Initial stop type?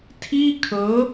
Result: aspirated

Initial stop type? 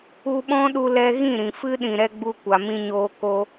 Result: implosive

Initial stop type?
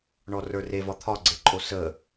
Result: aspirated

